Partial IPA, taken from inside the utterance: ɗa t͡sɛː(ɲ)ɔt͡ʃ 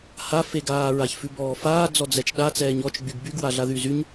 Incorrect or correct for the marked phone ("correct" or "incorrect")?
correct